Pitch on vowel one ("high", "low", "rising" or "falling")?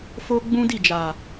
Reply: high